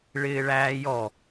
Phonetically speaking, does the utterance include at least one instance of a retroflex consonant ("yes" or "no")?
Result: yes